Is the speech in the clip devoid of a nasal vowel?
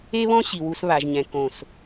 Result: no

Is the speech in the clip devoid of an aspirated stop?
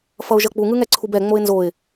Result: no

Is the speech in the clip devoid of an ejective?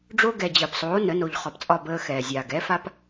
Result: no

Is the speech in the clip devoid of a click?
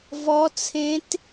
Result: yes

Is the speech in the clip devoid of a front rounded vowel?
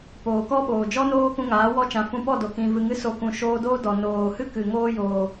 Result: yes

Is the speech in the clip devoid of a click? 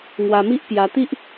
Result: yes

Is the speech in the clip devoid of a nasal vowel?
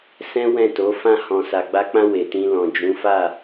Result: no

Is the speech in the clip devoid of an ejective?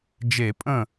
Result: no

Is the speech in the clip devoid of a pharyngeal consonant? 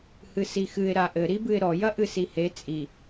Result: yes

